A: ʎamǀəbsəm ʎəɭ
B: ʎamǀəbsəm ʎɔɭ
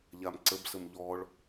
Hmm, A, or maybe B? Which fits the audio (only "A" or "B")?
B